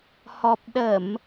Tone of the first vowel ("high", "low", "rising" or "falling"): low